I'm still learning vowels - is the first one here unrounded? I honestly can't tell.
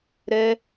yes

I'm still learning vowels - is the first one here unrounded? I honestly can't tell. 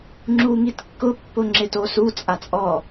no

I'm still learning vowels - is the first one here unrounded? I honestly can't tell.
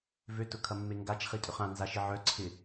no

